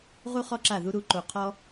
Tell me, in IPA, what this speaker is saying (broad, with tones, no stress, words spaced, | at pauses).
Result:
ʁu˦χɔ˦ǁa˦˨ðu˦ ɾu˦ ǃo˧qʰɔ˦